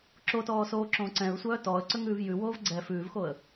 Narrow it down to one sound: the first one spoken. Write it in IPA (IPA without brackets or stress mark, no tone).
ǁ